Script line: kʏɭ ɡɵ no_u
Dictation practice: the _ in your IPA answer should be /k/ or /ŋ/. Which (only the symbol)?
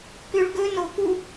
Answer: k